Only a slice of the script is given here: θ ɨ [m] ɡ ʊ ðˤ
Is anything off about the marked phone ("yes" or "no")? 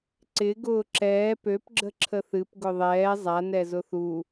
yes